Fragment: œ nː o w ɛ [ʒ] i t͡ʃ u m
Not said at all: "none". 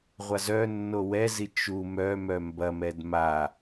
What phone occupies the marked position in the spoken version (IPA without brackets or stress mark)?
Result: z